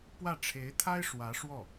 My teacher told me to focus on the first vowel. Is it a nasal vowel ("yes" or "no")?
no